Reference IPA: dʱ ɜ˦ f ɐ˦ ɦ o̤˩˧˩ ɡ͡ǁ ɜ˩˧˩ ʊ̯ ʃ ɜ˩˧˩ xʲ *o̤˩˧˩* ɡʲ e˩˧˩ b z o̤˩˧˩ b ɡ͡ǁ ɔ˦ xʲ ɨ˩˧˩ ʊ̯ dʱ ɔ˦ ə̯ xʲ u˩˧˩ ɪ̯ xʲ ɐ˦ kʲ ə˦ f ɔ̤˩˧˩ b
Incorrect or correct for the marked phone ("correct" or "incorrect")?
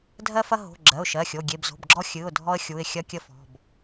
incorrect